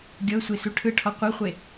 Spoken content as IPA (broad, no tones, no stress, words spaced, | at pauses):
ɡʲɤsʷesu ʈʰɯʈʰɔ qʷɤχʷe